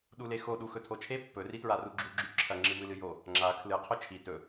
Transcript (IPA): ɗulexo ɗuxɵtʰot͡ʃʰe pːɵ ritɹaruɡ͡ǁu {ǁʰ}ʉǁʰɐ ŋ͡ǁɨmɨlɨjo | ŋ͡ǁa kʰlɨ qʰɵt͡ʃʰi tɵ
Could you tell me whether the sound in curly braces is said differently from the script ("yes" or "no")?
yes